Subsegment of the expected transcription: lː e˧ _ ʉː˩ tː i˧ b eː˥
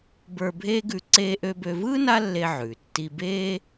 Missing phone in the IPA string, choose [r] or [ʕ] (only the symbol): ʕ